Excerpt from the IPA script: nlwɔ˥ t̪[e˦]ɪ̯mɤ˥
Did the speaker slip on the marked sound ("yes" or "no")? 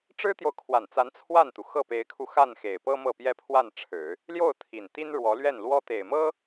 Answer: yes